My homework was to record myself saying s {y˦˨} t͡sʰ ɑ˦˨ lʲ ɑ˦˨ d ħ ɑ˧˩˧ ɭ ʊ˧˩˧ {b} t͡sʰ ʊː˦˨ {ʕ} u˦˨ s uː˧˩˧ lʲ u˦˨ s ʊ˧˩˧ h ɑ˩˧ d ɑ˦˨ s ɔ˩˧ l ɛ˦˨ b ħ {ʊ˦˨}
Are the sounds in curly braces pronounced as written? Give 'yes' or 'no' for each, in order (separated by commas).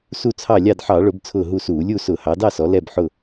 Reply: no, yes, no, yes